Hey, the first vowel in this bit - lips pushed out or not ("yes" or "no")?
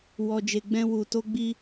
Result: yes